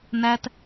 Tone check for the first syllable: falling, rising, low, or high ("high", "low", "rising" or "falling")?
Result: high